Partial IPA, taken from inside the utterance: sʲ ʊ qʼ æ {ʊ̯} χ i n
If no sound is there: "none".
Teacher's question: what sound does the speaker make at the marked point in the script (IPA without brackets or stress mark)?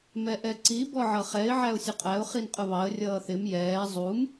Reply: ʊ̯